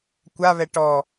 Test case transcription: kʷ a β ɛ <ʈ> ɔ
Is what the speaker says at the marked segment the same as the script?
yes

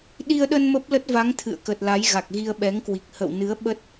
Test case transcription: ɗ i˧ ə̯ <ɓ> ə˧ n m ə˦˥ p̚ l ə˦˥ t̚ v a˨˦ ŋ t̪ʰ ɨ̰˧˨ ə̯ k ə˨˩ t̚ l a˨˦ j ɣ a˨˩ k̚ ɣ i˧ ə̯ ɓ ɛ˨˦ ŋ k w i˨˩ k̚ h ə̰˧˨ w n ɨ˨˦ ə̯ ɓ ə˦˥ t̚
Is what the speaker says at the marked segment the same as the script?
no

